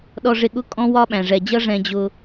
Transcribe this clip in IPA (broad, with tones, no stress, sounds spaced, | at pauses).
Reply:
ɗ ɔ˨ ʐ ɪ˨ ɠ ʊ˦ kʼ ɔ̃˦ w ɒ˦ ɓ æ̃˩ ʐ ɛ˩ d͡ʑ ʌ˦ ʐ ɛ̃˨ d͡ʑ ʊ˨